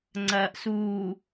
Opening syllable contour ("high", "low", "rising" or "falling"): low